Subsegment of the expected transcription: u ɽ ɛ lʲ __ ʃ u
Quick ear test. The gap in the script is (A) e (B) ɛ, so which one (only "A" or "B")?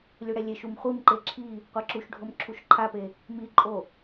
A